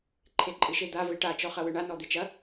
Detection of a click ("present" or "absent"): present